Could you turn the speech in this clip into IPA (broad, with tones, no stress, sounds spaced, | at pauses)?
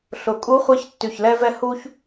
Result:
ɬ ʊ˨˩˦ kʼ u˧˥ χʷ ɛ˧˥ ç tː y˧˩ ç l ɛ˥ v ɛ˥ h u˥ ç